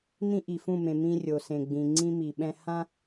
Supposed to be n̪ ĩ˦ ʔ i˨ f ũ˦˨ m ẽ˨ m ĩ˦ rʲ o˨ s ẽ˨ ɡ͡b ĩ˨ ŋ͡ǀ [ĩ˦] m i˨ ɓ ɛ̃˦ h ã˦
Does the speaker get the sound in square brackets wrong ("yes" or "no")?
no